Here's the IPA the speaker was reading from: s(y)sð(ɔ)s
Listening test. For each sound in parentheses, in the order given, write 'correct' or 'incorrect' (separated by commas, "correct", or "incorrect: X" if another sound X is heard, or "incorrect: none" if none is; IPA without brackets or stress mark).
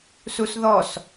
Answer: incorrect: u, correct